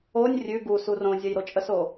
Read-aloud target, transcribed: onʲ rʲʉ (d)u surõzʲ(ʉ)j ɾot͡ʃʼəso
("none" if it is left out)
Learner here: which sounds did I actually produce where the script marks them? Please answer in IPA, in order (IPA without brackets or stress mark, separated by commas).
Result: ɡ, ə